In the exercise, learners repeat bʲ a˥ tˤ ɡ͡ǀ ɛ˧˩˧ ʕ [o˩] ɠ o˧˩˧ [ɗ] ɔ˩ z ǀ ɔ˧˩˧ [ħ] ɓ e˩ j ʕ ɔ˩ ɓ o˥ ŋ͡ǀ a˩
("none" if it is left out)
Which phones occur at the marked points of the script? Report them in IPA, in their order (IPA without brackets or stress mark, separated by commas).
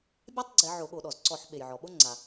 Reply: o˧˩˧, ɗ, ħ